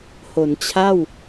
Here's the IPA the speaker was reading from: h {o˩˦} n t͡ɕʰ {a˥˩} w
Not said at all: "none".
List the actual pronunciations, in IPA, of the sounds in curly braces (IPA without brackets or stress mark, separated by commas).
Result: o˩˦, a˥˩